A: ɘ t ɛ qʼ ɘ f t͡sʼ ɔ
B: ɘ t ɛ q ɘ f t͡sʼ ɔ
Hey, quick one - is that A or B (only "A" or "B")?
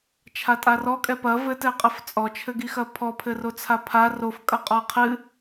A